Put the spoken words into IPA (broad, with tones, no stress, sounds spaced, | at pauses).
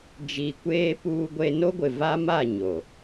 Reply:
d͡ʒ iː˨ kʷ eː˦ p uː˦ ɡʷ e˦ n o˦ ɡʷ ɪ˨ v a˦ m a˦˨ ɲ o˨